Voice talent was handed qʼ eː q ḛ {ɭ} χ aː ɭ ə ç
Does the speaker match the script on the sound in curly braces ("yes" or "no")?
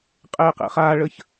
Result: no